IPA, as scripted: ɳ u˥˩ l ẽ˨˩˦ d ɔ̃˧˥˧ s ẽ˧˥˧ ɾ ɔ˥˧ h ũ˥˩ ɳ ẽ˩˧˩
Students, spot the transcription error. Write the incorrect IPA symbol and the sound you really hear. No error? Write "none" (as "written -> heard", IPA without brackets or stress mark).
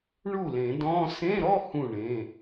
none